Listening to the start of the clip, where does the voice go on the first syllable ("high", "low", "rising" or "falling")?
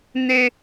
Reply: high